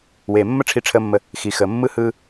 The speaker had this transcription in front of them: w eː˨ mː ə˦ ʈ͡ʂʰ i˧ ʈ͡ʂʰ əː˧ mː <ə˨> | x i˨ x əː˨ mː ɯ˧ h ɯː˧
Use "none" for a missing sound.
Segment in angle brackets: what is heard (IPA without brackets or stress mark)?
ə˧